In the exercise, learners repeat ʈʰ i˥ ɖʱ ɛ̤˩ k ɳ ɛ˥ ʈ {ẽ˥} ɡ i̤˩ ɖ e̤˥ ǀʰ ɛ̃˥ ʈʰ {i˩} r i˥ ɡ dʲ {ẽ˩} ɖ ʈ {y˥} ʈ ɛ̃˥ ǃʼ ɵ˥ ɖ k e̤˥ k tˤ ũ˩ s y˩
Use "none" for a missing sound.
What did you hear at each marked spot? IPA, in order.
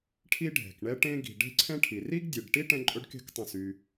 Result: ẽ˥, i˩, e˩, i˥

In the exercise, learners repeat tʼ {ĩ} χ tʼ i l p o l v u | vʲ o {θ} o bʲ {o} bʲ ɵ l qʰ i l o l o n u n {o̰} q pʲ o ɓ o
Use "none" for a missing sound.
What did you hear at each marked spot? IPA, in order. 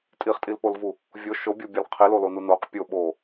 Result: i, ʃ, o, o

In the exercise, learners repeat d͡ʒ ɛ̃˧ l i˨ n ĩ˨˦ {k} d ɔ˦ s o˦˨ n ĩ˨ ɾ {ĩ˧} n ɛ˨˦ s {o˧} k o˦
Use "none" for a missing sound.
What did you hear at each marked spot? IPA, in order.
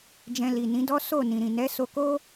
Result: none, ĩ˨, o˧

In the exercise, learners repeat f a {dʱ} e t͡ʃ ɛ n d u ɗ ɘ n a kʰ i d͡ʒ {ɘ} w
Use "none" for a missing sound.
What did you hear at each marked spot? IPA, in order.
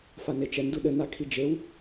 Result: n, e

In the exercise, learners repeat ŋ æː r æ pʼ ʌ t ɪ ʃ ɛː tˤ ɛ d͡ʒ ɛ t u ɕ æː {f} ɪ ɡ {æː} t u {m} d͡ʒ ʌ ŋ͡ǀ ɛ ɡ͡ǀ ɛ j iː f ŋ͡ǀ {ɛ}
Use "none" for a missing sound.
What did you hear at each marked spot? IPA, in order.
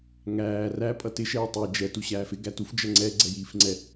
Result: f, æ, f, ɛ

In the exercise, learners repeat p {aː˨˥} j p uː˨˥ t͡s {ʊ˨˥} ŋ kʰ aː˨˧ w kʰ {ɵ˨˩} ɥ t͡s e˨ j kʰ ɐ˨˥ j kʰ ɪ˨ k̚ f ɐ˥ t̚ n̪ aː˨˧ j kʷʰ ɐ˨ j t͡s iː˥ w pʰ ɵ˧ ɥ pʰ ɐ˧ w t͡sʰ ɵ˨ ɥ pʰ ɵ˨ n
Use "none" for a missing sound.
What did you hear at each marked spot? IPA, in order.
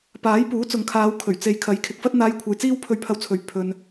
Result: aː˨˥, ʊ˨, ɵ˨˩

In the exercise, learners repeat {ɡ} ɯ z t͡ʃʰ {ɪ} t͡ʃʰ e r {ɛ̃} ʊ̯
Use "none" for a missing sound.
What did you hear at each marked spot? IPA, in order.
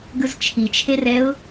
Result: ɡ, i, ɛ

